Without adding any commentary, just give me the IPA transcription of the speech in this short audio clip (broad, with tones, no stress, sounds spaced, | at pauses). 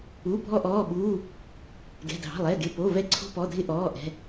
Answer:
u˩˧˩ bʱ ɔ˧ ʔ ɔː˩˧˩ ɓ uː˩˧˩ | ɡ ɛ̤˩˧˩ dʱ ɑ̤˩˧˩ lˠ ɛ˩˧˩ ɡ ɪ˩˧˩ p o˩˧˩ v ɛ˧ ǀʰ o̤˧ p ɔ˩˧˩ dʱ ɪ˧ ʔ ɔː˩˧˩ ʔ ɛ̤˩˧˩